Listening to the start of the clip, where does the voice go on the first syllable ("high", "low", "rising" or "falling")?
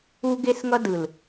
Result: high